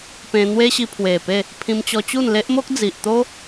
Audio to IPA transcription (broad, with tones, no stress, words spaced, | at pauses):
pẽ˧n̪we˦ɕi˧ pʰwe˨˩pe˥˧ | pʰĩ˧mt͡ɕɔ˧t͡ɕu˥˧n le˦ʔmo˦k̚d͡zi˨ʔt̪o˦